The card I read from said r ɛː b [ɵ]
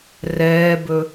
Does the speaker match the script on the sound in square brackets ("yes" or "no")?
yes